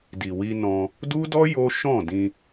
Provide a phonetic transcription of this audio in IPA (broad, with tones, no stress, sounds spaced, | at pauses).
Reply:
d i˨ w i˧ n ɔ̃˧ | d u˦ d ɔ˦ j o˦ ʃ ɔ̃˦˨ d ĩ˧